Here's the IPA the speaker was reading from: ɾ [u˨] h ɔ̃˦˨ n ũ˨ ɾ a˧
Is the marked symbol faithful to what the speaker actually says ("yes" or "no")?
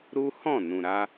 no